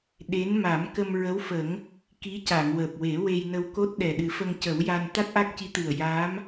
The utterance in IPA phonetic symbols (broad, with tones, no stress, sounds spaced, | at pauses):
ɗ e˧˥ n m a˨˩˦ m k ə˧ m ɹ ə˧˥ w f ə˨˩˦ ŋ | k i˧˥ c a˨˩˨ ŋ w əː˨˩ p̚ w e˨˩˦ w e˧ j n ə˧ w k o˦˥ t̚ ɗ ɛ˨˩ ɗ ɨ˨˩˦ f ə˧ ŋ c ə˨˩˦ w j a˧ n t̪ a˦˥ t̚ ʔ a˦˥ k̚ c i˧˥ t̪ ɨ˨˩ ə̯ j aː˧˥ m